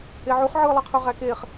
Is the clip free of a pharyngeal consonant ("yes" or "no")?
no